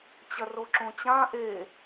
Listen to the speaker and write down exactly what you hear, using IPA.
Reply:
t͡ɕɐroǁõt͡ɕã ʔe

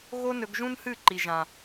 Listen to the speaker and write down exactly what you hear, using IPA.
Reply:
ɣo˦nɵ˧ɡʒũ˦nhɨ˦˨ ǃi˨ʒã˨

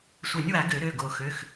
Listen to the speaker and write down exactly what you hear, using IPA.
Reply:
sʷœ˨˩˦nʲwa˨˩˦ ɡø˨˩˦ɾø˩˧˩ ɡo˨˩˦xø˩˧˩x

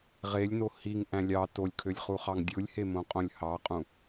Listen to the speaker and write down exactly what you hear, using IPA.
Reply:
ʁelʲno hiŋʔæ̃ lʲɑ tolʲkʰølʲχuχɑŋ dʲɯlʲhemõqʼõlʲ hɑqʼũ

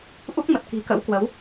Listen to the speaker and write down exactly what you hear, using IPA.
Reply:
ʔu˦˥k̚mə˨˩t̚ ki̤˨˩kə̰˧˥wkwə˨˦w

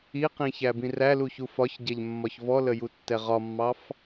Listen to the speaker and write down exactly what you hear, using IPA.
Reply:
iqĩçæbĩ ræluçu fɒçɟɛʎmːɒç vɔləjutːɛ ʁɒmːɑf

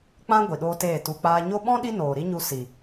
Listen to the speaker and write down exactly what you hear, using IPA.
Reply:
k͡pã˦ ɡʷi˨ɗoː˦teː˦˨ tu˨k͡paː˧ɲo˦ ɓɔ̃˦ ɗi˦noː˨ɾi˦ɲu˧ si˨

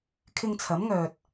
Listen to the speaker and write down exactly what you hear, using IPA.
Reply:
kʰɪ˧ŋt͡sʰɐ˨˥mŋœː˨t̚

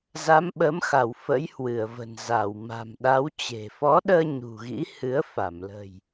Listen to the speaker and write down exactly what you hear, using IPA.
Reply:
za˨˦mɓə˨˦mxa˧˩w fə̰˧˥jhwɨ˧˩ə̯və̤˨˩nza˧˩w ma̤˨˩mɗa˨˦wt͡ɕe̤˨˩ fɔ˨˦ɗəː˧ ɲṳ˨˩ɣḭ˧˥ hɨ˨˦ə̯ fa˧˩mlə̤˨˩j

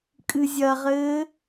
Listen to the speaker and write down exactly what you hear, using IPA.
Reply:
kʼɨzʲɐʁɘː

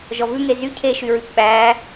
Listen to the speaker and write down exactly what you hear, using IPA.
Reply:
ʒɔvʉŋe zy cʰeʃyɹʉp ɓæː

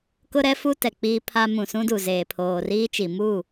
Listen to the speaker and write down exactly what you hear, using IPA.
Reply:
kʊ˦ɾɛ˦ fu˦tɛ˨ k͡piː˦pʰa˦ mũ˨sũ˦du˨zeː˨ pʰoː˨riː˦t͡ʃi˨mu˦˨

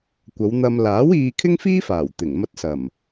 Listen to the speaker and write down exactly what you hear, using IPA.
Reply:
kʷɐ˨˧wn̪ɐ˧m laː˨˥w iː˧kʰɪ˥ŋfiː˥faː˨˩w t̪ɪ˨˩ŋmɐ˧t̚ sɐ˨˩m

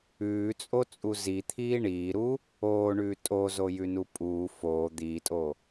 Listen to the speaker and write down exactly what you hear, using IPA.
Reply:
ʉːt͡sʼot͡sʼu zit̪ʰiː ɳiːɾuː | oːɳʉː tʼozojʉnu pʼuː foː d̪iːtʼoː

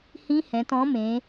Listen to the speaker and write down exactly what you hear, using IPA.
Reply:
hĩ˦˥ hɛ̃˩˧tɔ̃˨˥mẽ˩˧

